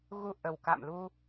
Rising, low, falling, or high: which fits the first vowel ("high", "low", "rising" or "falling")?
low